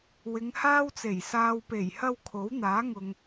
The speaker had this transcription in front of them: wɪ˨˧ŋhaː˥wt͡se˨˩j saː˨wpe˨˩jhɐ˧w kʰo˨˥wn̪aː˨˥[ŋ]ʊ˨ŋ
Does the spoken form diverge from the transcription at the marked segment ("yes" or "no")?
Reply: no